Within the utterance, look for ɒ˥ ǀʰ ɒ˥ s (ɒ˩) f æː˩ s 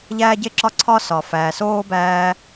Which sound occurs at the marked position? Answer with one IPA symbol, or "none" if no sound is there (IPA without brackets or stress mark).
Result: ɒ˩